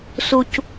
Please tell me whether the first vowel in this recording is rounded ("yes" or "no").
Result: yes